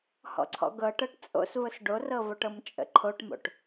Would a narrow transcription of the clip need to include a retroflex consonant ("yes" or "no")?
yes